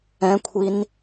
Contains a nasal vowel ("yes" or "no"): yes